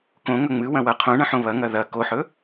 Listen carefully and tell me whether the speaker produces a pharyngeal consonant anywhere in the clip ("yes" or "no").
yes